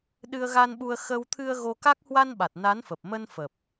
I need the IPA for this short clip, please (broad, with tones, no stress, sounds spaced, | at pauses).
ɗ ɨ˧ ə̯ ɣ a˧ n ɓ u˧ ə̯ x ə˧ w t̪ʰ ɨ˧ ə̯ ɣ o˧ k a˦˥ k̚ h w a˧ n ɓ a˨˩ t̚ n a˨˦ n f ə˨˩ p̚ m ə˧ n f ə˨˩ p̚